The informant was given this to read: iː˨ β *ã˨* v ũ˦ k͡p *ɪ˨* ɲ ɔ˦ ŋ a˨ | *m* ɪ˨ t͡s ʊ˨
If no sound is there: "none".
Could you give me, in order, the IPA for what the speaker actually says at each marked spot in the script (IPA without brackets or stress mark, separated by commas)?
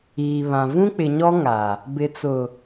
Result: ã˨, ɪ˨, b